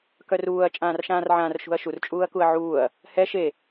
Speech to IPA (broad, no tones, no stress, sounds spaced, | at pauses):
k œ r uː ɐ̯ t͡ʃʼ ãː r ʃ ãː r ʕ ãː r ʃ ṳ ɐ̯ ʃ u r t͡ʃʼ uː ɐ̯ k u ɐ̯ ʕ uː ɐ̯ | h ɛ ʃ e